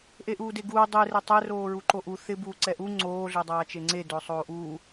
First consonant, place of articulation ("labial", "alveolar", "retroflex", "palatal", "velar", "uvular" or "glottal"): glottal